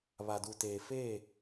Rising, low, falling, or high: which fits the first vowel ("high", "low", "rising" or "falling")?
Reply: low